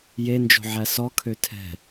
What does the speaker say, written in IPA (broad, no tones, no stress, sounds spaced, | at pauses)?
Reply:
j e n d͡ʒ o̤ ʕ æ s ɔ kʰ ø tʰ ɛ̤